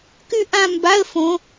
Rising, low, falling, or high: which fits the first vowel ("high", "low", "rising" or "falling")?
falling